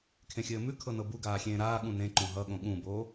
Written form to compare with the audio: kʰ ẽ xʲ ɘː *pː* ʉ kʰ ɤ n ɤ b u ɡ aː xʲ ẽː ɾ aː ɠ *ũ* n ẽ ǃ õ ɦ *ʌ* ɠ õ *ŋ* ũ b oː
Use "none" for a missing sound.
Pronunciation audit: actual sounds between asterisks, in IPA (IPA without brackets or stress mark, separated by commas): m, ũ, ʌ, ɠ